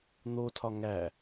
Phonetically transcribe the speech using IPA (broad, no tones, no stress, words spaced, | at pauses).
n̪otʰɒ ŋæ